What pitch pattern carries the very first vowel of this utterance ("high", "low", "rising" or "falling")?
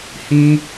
high